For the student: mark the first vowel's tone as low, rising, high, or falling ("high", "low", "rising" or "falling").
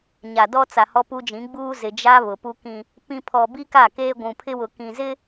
low